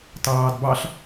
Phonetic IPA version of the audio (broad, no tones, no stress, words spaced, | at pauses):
tɑːdbɑɬ